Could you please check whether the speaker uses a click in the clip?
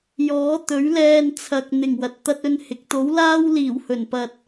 no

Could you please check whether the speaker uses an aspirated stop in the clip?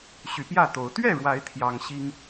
yes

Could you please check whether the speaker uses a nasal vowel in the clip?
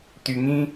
yes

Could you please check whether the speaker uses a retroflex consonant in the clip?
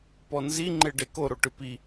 yes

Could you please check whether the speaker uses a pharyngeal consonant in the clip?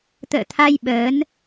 no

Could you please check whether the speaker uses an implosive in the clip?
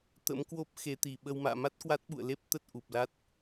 yes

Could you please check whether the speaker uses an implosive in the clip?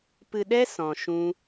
yes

